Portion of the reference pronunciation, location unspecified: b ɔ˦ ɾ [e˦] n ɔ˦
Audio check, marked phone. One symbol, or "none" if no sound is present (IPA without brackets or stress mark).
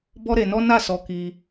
e˧